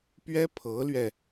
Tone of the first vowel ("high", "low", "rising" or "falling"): high